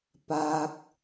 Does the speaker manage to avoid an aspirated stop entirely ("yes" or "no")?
yes